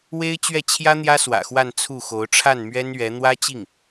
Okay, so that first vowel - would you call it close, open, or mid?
mid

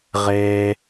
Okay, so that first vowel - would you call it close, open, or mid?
mid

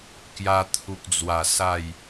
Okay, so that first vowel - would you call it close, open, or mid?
open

